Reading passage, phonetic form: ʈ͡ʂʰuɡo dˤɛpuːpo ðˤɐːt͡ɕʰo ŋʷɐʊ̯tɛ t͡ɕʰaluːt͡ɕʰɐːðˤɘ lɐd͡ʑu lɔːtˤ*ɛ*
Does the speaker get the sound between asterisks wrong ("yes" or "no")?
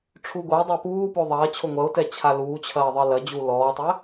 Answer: no